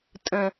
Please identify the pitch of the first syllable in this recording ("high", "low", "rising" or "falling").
low